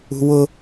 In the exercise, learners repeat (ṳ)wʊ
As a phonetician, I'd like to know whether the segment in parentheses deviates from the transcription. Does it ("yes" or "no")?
no